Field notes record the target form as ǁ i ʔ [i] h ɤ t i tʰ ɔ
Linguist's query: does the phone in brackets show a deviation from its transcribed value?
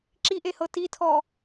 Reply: yes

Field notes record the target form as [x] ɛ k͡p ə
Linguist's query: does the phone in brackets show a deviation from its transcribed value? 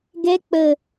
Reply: yes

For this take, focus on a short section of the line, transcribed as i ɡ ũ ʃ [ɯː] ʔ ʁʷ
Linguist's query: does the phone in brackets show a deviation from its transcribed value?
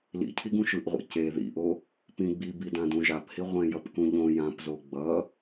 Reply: yes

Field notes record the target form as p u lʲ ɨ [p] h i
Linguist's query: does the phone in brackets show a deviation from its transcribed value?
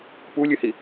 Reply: yes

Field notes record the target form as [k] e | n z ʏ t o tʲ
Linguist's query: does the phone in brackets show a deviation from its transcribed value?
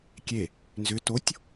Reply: yes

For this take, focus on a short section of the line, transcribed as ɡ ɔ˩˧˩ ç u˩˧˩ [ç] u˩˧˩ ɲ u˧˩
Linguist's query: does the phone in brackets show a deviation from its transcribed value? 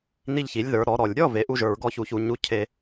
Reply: no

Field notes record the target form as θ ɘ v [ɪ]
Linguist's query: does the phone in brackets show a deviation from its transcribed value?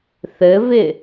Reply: no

